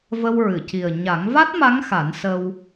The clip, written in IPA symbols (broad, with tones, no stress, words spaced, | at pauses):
və˧wɹɨ˨˩˨ci˨˩ə̯ ɲa˨˩˦ŋva˦˥t̚ma˧˥ŋxa˨˩˦n sə˧w